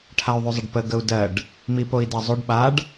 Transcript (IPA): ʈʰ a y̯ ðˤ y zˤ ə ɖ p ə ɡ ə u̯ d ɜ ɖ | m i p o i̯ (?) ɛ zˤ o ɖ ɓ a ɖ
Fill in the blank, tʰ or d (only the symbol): d